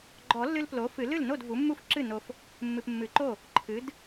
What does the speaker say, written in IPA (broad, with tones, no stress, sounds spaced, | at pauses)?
ɡ͡ǃ ɔ˨˩˦ lː ɨ˦ l p l o˩˥ f ɨ˨˩˦ l ɨ˥˩ l n o˥˩ d v u˩˥ mː u˥˩ f ǁ ɨ˥˩ n o˨ f | mː ɨ˨ p mː ɨ˨˩˦ ǃ o˥˩ | ǃʰ ɨ˩˥ d